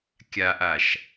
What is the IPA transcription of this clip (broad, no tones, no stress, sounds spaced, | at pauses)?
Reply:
kʲ a ʔ a ʃ